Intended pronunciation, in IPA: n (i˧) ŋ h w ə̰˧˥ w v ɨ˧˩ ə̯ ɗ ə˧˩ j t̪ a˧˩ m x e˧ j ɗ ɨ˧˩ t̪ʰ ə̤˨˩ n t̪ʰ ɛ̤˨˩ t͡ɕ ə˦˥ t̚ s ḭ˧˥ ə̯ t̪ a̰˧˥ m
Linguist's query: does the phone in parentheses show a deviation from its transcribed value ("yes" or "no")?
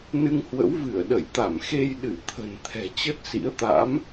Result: yes